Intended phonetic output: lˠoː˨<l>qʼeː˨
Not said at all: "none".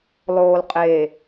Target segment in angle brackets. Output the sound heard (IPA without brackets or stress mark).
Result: l